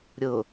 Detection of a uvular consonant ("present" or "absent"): absent